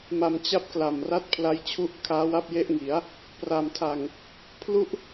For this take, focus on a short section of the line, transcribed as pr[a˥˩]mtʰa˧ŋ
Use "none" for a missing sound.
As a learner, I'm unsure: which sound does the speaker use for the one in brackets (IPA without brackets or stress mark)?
a˧